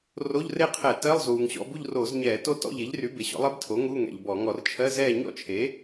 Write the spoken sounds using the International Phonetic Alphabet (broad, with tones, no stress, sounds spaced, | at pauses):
r o˧˥˧ ʎ r e˥˧ qʰ ɛ˧˩˧ t ɜ˧˥˧ lˠ z uː˩ ŋ ɕ ɔ̰˧˥˧ b u˥˧ ʎ r oː˧˩˧ z ɲ ɛː˧˩˧ t o˦˥ t ɔ̰˧˥˧ ʎ e˩˥ ʎ r y˩˥ b e˩ ɕ ɔ̰˩˥ lˠ e˦˥ b tʰ o˩˥ ŋ u˧˥˧ ŋ ɛ̰˩ ʎ b ɔ˧˩˧ ŋ ɔ˧˩˧ r t͡ʃʰ ɜ˧˥˧ z ɛː˥˧ ɲ ɔ̰˥˧ t͡ʃʰ e˩˥